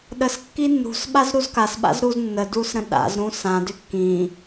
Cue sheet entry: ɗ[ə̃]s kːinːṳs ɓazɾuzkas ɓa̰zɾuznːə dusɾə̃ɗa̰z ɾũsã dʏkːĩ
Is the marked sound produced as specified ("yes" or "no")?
no